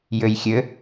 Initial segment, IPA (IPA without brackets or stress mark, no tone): j